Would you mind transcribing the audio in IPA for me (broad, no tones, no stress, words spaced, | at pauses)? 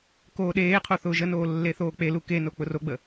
koːɗeːqʰo θʊːʒənoː lːeθoːk͡pelu keno k͡pʊroɡ͡bə